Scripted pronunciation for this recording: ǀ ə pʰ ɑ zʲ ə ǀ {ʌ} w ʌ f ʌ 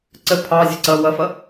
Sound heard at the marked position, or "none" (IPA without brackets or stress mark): ʌ